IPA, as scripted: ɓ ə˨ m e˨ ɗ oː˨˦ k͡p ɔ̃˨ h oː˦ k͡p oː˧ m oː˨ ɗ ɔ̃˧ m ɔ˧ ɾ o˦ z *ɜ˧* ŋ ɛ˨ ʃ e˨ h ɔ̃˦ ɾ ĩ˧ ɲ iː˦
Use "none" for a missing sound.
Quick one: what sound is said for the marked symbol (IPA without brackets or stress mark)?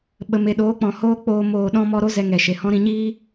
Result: ɛ˧